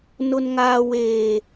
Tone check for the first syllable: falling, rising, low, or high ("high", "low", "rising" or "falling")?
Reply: high